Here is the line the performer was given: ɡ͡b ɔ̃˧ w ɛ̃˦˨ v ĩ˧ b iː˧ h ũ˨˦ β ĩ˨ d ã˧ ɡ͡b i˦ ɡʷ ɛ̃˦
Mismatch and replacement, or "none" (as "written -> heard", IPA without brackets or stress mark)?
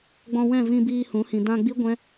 β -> h